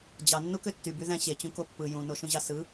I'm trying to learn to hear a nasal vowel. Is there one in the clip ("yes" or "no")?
yes